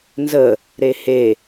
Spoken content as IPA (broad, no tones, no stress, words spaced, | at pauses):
nzə | ɾehe